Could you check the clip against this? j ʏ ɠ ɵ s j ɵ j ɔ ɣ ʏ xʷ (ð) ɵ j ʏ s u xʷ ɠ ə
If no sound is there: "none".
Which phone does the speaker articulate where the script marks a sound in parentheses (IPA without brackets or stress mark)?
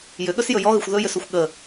ð